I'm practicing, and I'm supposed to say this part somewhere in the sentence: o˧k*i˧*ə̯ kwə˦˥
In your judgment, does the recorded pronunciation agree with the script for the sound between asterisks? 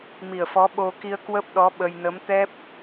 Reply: yes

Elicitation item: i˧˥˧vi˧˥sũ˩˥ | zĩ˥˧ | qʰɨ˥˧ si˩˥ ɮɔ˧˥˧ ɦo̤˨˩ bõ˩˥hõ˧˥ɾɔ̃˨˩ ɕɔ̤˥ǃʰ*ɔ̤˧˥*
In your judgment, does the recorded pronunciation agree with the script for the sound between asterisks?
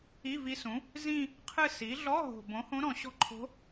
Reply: no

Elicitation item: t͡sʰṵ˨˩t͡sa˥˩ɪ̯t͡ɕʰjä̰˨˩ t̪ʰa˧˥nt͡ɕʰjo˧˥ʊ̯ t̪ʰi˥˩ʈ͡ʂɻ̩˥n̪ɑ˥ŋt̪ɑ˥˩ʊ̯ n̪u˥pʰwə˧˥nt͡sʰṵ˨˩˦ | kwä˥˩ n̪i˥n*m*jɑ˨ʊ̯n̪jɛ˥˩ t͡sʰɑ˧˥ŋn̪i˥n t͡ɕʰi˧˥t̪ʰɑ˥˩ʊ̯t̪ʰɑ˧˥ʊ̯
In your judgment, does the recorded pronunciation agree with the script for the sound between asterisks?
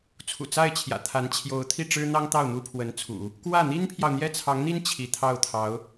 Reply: no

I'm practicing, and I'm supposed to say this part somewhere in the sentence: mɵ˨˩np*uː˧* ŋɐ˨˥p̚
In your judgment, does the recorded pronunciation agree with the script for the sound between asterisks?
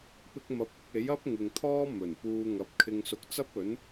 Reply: yes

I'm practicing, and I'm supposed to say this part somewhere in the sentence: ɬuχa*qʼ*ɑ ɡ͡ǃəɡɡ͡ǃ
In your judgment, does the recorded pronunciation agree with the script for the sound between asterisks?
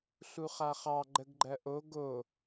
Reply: no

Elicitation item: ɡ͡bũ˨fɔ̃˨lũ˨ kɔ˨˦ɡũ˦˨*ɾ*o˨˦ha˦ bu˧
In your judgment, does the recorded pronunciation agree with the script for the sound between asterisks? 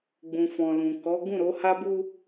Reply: yes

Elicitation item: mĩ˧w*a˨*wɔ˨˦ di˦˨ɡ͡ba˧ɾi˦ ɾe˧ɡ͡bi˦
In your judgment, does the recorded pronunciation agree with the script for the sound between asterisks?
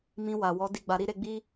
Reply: yes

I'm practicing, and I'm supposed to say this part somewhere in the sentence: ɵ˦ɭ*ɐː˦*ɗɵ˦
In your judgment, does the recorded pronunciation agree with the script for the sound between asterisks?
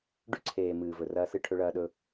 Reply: yes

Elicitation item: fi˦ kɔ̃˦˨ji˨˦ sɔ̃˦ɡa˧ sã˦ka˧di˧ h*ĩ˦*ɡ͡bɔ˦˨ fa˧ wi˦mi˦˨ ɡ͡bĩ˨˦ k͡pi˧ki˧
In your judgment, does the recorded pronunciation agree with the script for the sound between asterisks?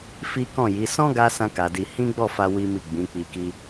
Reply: yes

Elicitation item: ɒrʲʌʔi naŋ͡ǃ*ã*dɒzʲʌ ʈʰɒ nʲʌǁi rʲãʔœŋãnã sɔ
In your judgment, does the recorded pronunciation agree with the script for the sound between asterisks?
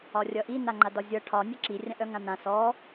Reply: no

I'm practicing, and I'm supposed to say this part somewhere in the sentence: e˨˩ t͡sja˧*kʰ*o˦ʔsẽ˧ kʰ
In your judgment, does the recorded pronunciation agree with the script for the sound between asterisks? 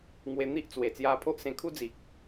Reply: no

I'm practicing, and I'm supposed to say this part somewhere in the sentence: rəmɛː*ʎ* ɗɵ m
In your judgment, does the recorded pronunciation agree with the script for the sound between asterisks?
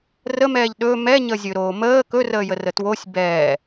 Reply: yes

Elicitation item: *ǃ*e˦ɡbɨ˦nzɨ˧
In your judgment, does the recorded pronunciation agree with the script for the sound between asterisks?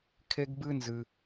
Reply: no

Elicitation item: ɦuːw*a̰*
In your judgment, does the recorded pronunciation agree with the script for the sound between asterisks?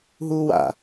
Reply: yes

